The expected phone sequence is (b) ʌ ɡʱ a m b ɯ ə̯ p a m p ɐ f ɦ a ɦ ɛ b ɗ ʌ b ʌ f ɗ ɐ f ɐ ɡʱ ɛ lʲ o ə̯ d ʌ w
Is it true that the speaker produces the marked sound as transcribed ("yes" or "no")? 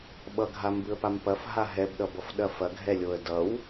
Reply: no